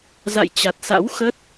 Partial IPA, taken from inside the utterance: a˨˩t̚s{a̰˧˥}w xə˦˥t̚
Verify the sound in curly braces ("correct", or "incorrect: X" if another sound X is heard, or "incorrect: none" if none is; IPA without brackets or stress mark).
correct